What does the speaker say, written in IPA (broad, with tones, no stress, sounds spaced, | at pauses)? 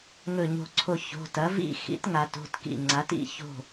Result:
ŋ ɵ˧˩ ɲ o̤˧˩ ǀʰ o˧˩ ç o̤˩˧˩ t ɐ˩˥ v ḭ˥˨ x ḭ˩˥ t ŋ a˩˧ t o̤˩˧˩ t k ḭ˧˩ ŋ͡ǀ a˩˥ t ḭ˩˧˩ ç o̤˥˨